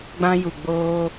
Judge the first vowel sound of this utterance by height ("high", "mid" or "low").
low